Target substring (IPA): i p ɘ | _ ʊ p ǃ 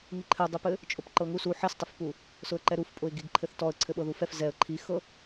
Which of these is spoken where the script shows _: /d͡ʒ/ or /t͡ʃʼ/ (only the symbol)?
t͡ʃʼ